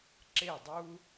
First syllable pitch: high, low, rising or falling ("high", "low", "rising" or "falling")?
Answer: falling